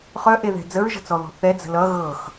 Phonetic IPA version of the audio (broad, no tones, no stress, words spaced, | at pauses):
χœʔeðɛ̤ d͡zəɹʒə̤t͡sɔðɔ̤ θɛd͡zə̤ lʌ ɣɤx